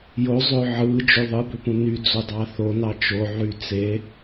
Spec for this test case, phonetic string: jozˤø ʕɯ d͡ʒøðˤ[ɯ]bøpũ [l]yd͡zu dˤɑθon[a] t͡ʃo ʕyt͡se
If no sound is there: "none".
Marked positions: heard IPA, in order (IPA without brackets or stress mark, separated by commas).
ɯ, n, ɑ